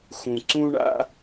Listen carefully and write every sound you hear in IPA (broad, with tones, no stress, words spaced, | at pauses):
xũ˩ ǀũ˥ɳa̰˥